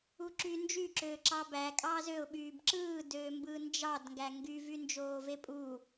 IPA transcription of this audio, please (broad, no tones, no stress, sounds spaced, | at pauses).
u ǁ yː n d͡ʒ y ǁ øː ǁ ɑ b æ kʼ ɑː z ø ʊ̯ ɓ yː b ǁ ɯː d øː m b ɯː n d͡ʒ ɑ d ŋ ɡ æ ŋ ɡ y v y n d͡ʒ oː v e pʼ u